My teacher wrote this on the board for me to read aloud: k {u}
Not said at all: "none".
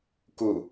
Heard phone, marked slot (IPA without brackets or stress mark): u